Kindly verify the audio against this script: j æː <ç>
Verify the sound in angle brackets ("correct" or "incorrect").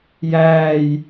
incorrect